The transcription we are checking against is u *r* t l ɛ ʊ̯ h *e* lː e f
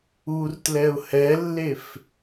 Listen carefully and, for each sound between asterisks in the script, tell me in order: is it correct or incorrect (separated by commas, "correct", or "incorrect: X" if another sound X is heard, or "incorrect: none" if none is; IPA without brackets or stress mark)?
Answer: correct, incorrect: ɛ